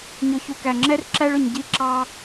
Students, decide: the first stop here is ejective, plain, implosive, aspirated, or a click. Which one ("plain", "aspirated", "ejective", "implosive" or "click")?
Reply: plain